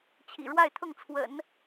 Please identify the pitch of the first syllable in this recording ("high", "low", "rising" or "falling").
low